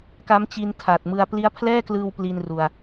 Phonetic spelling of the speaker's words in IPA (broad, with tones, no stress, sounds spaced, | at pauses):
k a˦˥ m t͡ɕ i˧ n tʰ a˨˩ t̚ m ɯ˧ a̯ p l i˦˥ a̯ pʰ l ɛː˥˩ k l ɯː˧ w p l i˧ n r u˨˩ a̯